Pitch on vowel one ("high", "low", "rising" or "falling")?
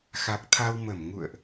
low